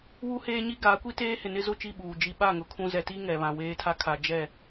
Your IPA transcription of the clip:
w u˦ h eː˦ ɲ i˦ ɡ a˨˦ kʷ i˦ t eː˦ h ɪ˨ n ɪ˦ z ʊ˦˨ t͡ʃ i˦˨ ɓ uː˨ d͡ʒ i˦ ɓ a˦˨ ŋ ʊ˨ kʰ ũ˦ z ɛ˨ t i˦ ŋ ɛ˨ β ã˨ w eː˦ tʰ a˦ kʰ a˨ d͡ʒ ɛ˦˨

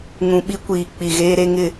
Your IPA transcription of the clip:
ŋ ũ˨ ɓ i˦ kʷ iː˨ k͡p i˨ ɣ eː˦ ɾ e˦ ŋ ɪ˦˨

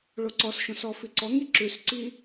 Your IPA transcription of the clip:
ɭ o ǀ ɔ s ʃ õ s ɔ f i ǀ ɔ ŋ i ǁ ʉ s ǀ i

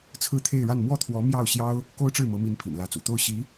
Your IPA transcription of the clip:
t͡sʰ ɹ̩˥˧ t̪ʰ e˥˧ ɪ̯ ɻ a˥˧ n m w ɔ˥˩ t̪ʰ w ɔ˧˥ m j ɑ˥˩ ʊ̯ ɕ j ɑ˥ ʊ̯ | k o˥ ʊ̯ ʈ͡ʂ ɻ̩˥˩ m ɤ˧˥ m i˧˥ n pʰ ḭ˨˩ n l ä˧˥ t͡s ṵ˨˩ t̪ o˥˩ ʊ̯ ɕ i˧˥

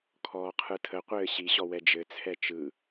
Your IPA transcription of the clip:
kʰ ɔː qʰ ɯ tʰ ə qʷ ɘː ɕ i ɕ ɔ w ɛ d͡ʒ ɘ t͡sʰ ɛ t͡ʃ ɯ

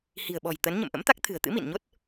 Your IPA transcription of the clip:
h i̤˨˩ ə̯ ɓ ɔ̤˨˩ j t̪ ə˨˦ n ɲ ə̰˧˨ m ʔ ə̰˧˥ m t̪ a˦˥ k̚ t̪ʰ ɨ̤˨˩ ə̯ t̪ ɨ̰˧˥ m ḭ˧˨ n ɲ o˦˥ t̚

